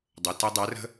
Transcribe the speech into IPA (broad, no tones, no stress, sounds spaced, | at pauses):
dˤ ə t ɛ dˤ æ r ə̤